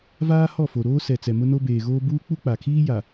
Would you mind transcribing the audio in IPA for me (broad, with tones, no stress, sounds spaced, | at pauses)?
v aː˦ h ɔ˦˨ f o˨ ɾ oː˦ s ɛ˨ t͡s ɛ˨ m ʊ˦ n o˦ b eː˨ ɣ oː˦ b uː˦ k͡p u˦ k͡p a˨ kʰ iː˦ j a˨